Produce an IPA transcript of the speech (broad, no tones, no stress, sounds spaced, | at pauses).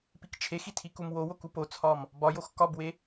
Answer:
p i k t͡ʃʰ e x i tʰ i k u m w o w o k u p o t͡sʰ ɒ m | b ɒ j o x k ɒ b w e